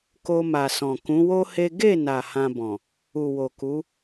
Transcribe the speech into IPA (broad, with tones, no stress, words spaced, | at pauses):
ko˧ma˨sɔ̃˨ kũ˨˦wo˦he˦ ɡe˦˨na˨ hã˧bɔ̃˨ | u˨wo˨ku˨˦